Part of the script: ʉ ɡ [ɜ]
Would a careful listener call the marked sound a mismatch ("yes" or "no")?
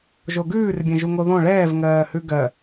no